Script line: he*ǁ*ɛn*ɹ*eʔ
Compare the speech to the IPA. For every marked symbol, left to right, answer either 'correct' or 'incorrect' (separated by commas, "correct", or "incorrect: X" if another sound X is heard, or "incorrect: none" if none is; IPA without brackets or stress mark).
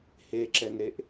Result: correct, incorrect: ɾ